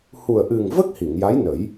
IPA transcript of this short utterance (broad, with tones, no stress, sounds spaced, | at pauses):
h u˨˩ ə̯ ʔ ɨ˨˩ ŋ v ə˦˥ k̚ h i˨˩˨ ŋ j a˧˥ j n ə˨˩˦ j